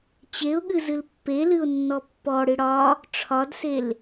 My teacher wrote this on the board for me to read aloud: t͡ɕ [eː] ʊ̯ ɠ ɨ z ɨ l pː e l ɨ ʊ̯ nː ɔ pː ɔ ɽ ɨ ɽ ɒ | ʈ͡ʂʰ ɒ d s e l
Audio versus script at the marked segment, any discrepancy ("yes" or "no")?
yes